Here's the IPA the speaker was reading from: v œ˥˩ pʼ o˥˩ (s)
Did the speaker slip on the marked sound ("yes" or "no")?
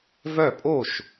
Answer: yes